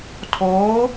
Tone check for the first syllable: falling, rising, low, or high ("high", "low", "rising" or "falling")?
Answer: rising